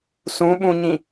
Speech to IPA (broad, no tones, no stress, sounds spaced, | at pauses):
s ũ ɓ ũ ɲ ĩ